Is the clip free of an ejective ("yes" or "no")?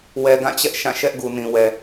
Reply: yes